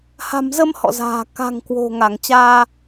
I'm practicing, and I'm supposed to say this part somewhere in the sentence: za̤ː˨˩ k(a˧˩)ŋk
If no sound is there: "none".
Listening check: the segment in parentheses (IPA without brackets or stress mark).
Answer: a̤˨˩